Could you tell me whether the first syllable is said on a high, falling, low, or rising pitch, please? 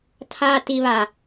low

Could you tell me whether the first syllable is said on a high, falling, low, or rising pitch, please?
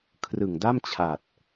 low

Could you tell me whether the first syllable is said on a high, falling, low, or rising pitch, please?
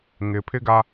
low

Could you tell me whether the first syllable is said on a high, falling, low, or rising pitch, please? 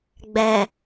low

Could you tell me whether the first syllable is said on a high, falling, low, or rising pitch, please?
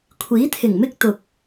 rising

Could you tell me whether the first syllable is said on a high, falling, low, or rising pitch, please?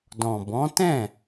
low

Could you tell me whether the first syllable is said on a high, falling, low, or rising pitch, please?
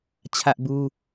high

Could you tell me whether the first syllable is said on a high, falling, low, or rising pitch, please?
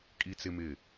high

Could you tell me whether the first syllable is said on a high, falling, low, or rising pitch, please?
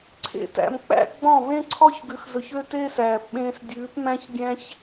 falling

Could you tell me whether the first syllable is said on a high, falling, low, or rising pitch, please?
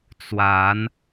rising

